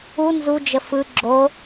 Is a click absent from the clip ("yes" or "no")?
no